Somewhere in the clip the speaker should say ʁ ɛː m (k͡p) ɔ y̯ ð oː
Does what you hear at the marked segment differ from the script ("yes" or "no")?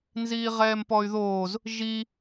yes